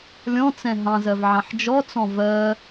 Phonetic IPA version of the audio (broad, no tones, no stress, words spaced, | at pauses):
lʲɔ̃t͡sɛ̃ ɦɑ̃zɜvʕɑ̃ħ d͡ʒɔt͡sɔ̃ vɜ